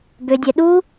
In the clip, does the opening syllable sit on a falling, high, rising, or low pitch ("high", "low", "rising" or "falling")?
high